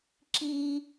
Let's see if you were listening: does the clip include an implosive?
no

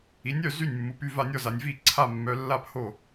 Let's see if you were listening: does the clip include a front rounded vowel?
yes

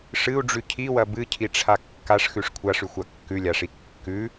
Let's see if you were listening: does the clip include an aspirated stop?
yes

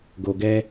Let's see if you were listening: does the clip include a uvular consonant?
no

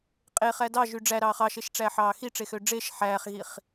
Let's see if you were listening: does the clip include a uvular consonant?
yes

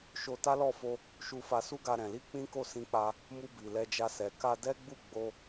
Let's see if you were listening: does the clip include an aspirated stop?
no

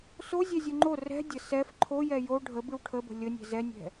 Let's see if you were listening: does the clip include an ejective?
no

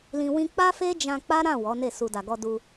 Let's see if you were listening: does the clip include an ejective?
no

